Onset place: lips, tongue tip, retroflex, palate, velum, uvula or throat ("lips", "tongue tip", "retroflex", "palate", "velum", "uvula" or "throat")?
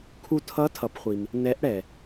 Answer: velum